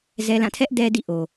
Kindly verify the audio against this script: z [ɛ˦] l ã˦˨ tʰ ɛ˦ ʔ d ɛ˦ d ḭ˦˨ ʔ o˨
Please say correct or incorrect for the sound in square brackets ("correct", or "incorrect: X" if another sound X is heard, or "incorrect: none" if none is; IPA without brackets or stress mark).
correct